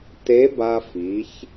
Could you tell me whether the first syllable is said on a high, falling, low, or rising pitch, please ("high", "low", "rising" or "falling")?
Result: rising